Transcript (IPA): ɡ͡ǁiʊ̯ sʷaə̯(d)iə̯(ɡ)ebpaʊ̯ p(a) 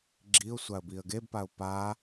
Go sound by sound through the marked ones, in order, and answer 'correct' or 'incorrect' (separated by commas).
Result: incorrect, correct, correct